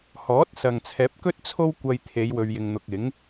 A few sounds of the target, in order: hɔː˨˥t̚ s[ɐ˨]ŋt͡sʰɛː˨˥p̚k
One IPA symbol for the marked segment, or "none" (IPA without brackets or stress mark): ɐ˨